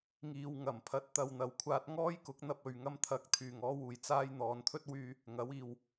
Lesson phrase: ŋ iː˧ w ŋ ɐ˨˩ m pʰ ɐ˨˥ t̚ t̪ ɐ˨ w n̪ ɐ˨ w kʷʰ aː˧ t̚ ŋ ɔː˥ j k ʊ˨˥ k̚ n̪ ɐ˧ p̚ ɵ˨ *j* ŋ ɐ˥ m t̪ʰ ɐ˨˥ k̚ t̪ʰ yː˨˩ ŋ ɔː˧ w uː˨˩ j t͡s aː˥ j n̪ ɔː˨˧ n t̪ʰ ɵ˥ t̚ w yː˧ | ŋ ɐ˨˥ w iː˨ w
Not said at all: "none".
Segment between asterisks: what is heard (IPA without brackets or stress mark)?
ɥ